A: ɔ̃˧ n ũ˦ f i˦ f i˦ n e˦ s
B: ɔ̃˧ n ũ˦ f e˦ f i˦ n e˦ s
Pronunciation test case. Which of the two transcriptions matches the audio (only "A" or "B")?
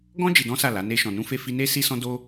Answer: B